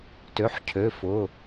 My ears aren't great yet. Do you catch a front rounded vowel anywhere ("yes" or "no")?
yes